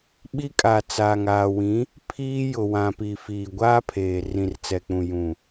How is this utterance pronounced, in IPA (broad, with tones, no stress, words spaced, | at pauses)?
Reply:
ɓi˦kʼa˨t͡saː˨ŋ aː˨wĩ˨˦ | pʰiː˦ jʊ˨wã˨pi˨ fiː˨ɡʷaː˦pʰeː˨ rĩ˨rt͡sɛ˨k͡pũ˨ jũ˨